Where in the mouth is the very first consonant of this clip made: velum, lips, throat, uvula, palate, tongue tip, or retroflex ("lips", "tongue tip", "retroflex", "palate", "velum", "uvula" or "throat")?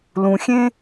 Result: tongue tip